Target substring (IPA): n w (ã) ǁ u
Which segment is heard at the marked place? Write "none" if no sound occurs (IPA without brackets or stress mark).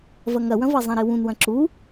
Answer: ɐ̃